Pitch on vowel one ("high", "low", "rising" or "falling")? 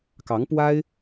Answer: rising